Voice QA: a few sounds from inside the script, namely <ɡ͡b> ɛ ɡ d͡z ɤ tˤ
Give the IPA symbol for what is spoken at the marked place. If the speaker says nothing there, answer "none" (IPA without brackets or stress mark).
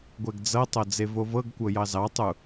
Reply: ɡʷ